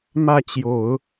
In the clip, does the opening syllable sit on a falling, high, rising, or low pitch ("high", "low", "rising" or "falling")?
falling